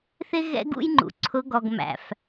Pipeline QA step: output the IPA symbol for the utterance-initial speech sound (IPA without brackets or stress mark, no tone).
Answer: θ